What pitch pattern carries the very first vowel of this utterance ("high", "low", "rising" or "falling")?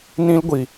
high